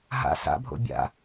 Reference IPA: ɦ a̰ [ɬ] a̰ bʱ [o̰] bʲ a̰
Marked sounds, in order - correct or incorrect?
incorrect: s, correct

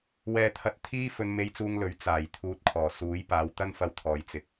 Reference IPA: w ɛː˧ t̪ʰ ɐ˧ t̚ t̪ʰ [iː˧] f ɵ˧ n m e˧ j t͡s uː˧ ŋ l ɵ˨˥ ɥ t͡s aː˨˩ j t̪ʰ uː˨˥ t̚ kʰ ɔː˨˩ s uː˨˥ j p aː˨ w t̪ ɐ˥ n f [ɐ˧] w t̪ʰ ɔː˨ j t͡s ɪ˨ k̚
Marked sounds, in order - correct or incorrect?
incorrect: iː˥, correct

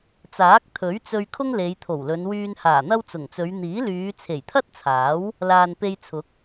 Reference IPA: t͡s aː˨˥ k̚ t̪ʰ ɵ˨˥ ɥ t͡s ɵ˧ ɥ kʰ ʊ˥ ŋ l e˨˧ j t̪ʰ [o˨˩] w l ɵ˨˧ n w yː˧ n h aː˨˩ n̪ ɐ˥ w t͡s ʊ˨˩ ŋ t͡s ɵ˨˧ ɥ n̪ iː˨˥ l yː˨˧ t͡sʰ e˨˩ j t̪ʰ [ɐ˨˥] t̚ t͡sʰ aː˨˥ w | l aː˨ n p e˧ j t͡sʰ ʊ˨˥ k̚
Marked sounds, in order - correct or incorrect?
correct, incorrect: ɐ˥

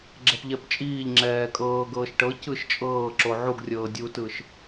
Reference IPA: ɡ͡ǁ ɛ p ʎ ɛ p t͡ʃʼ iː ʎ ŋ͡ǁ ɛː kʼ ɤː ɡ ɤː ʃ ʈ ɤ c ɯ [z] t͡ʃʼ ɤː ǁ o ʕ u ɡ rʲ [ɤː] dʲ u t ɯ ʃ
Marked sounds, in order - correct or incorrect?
incorrect: ʃ, correct

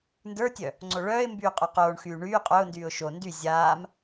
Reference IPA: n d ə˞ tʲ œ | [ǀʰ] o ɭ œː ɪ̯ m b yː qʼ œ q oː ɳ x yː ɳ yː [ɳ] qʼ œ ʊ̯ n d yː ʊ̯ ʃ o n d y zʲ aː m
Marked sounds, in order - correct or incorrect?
incorrect: ŋ͡ǀ, incorrect: none

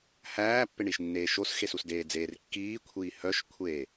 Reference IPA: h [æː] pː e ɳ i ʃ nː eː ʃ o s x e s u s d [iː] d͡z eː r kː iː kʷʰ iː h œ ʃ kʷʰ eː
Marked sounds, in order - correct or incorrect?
correct, incorrect: eː

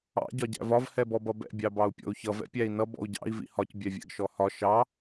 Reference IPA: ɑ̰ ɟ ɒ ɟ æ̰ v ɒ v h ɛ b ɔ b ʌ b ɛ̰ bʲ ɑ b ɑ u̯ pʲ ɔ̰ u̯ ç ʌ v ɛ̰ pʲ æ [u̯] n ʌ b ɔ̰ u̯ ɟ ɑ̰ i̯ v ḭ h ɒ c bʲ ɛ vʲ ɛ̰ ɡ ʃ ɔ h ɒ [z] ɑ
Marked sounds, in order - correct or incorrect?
incorrect: i̯, incorrect: ʃ

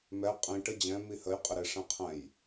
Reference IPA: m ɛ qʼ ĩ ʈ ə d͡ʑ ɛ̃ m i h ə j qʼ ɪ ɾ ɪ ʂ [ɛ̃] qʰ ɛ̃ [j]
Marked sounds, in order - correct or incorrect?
correct, correct

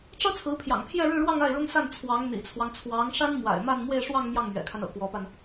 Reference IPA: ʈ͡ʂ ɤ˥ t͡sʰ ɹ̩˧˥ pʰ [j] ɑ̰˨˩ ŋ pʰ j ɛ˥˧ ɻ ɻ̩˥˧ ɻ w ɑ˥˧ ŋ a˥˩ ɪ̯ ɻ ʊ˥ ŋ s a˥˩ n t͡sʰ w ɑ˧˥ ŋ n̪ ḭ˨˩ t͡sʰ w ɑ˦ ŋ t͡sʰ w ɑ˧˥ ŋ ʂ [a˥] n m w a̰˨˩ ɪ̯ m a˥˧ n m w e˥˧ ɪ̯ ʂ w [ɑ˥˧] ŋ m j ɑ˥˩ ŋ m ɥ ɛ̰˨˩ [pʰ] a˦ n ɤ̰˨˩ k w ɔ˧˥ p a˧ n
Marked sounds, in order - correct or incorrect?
correct, correct, correct, incorrect: kʰ

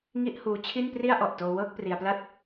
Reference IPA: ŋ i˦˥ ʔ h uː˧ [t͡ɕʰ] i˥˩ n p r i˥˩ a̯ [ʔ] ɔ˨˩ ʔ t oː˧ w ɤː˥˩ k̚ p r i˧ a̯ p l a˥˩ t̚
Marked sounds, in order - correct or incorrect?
correct, correct

